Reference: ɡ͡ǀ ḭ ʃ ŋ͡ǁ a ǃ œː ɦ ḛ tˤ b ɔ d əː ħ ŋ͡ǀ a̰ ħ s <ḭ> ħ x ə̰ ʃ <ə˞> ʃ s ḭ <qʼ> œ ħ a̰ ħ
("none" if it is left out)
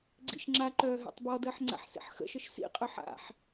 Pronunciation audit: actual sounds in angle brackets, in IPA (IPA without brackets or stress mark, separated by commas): ḭ, ə, qʼ